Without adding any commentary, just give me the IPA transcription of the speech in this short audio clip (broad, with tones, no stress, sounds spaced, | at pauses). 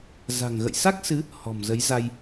z a̤˨˩ ŋ ɣ ə̰˧˨ j s a˦˥ k̚ s ɨ˨˦ | h ɔ̤˨˩ m z ə˨˦ j z a˧ j